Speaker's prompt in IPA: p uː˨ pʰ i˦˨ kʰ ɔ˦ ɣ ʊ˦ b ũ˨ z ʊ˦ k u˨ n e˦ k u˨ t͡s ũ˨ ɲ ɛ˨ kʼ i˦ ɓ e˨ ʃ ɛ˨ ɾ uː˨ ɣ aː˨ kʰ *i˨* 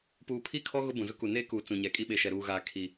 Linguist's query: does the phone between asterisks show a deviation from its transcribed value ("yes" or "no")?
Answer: no